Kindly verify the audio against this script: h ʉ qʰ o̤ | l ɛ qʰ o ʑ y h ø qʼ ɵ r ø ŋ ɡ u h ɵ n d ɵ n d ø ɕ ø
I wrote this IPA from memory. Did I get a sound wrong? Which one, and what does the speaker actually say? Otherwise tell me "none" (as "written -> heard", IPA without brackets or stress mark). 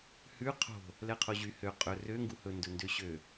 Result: none